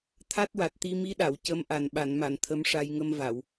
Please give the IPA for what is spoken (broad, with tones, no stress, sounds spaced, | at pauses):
t̪ʰ a˦˥ t̚ w a˨˩ t̚ t̪ i˧ m i˧˥ ɗ a˨˩˨ w c ə˧˥ m ʔ a˨˩ n ɓ a˨˩˨ n m a˨˩˨ n t̪ʰ ə˧˥ m ʂ a˧ j ŋ ə˧ m v a˨˩˨ w